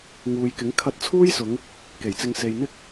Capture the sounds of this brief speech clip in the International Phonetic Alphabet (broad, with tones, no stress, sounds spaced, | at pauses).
ŋ uː˨ j k ɪ˨˥ ŋ kʰ ɐ˧ t̚ t͡sʰ uː˥ j s ʊ˨˧ ŋ | k e˨˩ j t͡s ɪ˧ ŋ s e˨ j n̪ ɪ˥ k̚